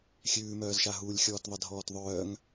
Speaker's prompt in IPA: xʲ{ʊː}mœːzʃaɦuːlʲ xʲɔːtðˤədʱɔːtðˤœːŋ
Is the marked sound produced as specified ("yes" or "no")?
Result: no